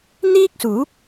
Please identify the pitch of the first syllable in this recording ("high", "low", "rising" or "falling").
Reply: high